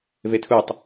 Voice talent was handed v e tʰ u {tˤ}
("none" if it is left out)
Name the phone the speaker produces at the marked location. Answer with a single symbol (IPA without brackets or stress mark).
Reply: tˤ